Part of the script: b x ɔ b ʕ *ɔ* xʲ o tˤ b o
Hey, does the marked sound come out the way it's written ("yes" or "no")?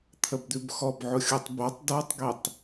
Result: no